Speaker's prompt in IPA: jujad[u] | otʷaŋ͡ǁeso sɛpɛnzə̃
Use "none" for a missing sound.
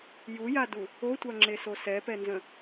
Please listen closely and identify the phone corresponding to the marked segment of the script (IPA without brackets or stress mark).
u